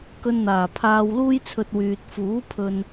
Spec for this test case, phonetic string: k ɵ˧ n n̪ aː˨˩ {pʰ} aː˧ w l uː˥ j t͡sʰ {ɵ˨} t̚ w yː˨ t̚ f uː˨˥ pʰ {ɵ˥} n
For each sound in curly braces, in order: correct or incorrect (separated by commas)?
correct, incorrect, incorrect